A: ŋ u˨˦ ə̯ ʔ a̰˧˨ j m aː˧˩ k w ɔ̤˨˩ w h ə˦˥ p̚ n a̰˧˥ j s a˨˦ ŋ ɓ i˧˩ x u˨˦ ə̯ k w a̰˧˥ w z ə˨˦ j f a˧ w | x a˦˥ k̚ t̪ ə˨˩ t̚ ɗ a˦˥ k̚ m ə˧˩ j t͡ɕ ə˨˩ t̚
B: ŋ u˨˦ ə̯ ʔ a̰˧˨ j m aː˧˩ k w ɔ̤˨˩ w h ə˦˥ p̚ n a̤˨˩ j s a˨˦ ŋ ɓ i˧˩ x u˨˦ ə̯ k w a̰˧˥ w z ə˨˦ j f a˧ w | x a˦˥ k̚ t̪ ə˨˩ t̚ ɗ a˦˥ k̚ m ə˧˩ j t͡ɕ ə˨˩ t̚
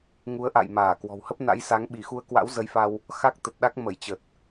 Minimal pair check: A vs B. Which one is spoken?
A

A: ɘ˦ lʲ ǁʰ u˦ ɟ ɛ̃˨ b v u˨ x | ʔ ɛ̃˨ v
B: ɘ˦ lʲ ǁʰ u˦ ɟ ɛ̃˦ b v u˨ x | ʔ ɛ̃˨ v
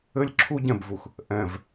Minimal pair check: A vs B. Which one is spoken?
A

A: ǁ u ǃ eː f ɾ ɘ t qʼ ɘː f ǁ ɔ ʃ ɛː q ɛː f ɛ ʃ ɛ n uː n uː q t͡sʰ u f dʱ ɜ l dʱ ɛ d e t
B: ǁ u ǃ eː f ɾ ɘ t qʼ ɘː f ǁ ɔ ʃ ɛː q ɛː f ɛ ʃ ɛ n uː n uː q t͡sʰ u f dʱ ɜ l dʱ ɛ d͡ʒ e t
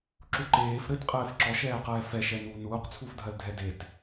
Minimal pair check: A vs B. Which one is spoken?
A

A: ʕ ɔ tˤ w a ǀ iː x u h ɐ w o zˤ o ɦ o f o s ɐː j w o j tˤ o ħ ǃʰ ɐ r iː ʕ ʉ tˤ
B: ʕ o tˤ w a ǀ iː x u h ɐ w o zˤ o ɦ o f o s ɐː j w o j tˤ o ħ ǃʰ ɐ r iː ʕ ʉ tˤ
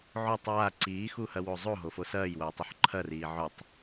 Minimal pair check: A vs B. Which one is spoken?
B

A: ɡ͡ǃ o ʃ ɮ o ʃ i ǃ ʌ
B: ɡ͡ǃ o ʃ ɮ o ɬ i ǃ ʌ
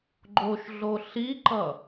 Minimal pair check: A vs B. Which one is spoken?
B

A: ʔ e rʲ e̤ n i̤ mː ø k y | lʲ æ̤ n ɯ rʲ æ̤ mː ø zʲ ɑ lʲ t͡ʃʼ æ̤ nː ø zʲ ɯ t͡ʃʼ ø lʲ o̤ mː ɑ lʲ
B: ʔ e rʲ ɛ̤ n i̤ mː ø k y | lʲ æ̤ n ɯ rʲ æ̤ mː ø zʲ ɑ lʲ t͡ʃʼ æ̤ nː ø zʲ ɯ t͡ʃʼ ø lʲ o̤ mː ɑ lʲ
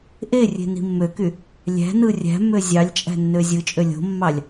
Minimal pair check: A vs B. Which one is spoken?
A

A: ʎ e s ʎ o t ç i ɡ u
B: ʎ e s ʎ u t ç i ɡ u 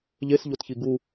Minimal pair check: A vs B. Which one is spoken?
A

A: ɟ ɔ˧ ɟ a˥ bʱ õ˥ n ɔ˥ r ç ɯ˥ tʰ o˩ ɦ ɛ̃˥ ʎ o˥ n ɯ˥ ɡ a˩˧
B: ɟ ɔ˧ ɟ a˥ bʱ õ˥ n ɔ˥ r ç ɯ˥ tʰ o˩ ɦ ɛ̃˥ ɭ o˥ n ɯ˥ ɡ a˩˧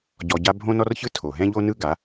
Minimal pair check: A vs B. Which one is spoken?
A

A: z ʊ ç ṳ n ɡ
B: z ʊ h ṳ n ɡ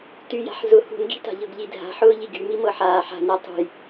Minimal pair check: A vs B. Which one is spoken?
B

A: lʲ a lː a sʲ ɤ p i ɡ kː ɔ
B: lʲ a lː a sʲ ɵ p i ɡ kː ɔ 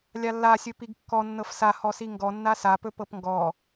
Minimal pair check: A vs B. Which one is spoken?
B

